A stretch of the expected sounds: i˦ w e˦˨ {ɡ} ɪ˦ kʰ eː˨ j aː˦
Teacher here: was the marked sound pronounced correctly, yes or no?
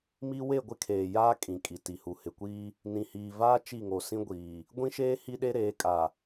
no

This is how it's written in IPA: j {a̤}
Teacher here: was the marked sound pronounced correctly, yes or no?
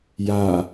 no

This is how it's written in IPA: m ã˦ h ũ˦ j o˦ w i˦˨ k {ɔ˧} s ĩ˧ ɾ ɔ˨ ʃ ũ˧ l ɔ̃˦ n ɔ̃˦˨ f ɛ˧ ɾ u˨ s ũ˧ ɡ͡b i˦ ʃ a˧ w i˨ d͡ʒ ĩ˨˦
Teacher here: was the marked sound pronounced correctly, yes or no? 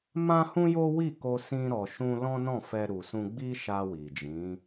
no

